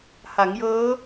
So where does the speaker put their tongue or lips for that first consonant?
throat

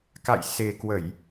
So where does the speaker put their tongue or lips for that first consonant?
velum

